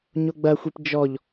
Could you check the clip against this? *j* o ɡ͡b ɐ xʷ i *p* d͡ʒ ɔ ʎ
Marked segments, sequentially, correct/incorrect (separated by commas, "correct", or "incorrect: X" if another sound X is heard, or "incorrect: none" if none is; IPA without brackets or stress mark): incorrect: ɲ, correct